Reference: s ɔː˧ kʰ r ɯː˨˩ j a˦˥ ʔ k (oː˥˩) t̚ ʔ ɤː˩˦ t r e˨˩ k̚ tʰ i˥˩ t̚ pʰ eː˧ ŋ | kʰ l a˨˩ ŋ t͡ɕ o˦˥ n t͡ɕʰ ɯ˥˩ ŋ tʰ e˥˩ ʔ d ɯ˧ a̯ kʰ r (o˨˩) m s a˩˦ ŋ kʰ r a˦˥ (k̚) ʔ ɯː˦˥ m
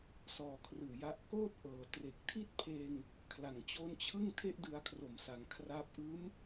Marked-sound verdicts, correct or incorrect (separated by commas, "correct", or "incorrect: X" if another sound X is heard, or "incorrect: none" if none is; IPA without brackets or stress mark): correct, correct, incorrect: p̚